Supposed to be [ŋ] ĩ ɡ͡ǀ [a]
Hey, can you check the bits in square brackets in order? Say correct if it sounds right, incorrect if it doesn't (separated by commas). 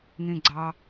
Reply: correct, incorrect